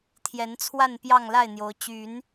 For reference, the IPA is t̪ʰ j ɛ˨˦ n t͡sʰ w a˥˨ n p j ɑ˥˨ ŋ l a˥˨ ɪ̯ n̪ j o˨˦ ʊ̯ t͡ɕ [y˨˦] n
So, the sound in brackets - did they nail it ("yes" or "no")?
yes